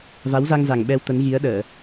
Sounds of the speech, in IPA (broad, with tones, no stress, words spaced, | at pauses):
va˨˦wza˧ŋza˨˩ŋ ɓɛ˧wt̪ə˨˦nɣi˨˦ə̯ɗəː˧˩˨